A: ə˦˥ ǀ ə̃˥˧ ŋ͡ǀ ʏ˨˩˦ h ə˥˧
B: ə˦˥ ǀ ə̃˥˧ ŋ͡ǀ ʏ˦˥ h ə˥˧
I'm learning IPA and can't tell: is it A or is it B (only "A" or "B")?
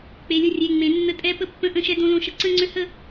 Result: B